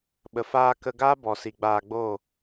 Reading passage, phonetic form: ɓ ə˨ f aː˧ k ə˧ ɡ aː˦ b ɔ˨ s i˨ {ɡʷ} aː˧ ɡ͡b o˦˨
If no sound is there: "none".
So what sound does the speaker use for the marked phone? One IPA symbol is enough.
ɡ͡b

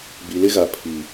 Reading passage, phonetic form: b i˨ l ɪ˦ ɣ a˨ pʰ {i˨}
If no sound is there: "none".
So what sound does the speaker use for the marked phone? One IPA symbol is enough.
i˨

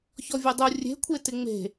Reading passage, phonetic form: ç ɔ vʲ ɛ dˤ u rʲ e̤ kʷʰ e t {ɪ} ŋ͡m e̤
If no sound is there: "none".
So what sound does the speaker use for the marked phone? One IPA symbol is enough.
ɪ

